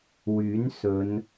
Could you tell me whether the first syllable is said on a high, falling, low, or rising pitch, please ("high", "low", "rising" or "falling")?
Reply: rising